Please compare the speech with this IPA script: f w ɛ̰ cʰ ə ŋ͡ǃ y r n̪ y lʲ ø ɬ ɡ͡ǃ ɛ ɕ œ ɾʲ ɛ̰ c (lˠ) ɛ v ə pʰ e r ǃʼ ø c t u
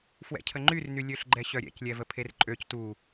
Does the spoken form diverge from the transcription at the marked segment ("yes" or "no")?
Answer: yes